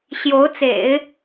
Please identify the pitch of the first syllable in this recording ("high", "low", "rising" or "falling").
rising